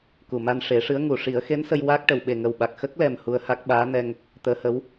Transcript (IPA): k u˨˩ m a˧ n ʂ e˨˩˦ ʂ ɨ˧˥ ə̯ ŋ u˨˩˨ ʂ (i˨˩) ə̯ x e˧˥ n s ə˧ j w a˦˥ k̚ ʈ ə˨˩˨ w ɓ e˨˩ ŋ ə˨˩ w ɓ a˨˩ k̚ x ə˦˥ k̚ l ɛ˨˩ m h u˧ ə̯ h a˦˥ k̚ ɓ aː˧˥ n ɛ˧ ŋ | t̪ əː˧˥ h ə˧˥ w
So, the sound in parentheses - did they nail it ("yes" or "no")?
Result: no